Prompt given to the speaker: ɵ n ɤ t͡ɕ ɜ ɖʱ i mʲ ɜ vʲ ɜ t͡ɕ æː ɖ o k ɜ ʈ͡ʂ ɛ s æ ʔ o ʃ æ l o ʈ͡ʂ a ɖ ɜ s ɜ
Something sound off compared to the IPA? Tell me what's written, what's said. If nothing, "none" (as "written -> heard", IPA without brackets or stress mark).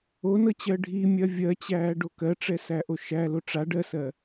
ɵ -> o